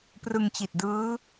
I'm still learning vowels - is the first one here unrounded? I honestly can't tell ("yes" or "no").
yes